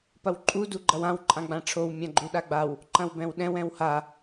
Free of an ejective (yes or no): no